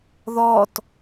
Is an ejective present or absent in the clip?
absent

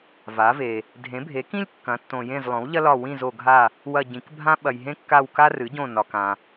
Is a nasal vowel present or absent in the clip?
present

